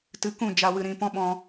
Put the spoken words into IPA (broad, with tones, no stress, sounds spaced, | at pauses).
t ɨ˨˦ k ũ˦˨ d͡ʒ a˨ w ɨ˨ ɾ ĩ˨ p ɔ̃˦ ɓ ɔ̃˧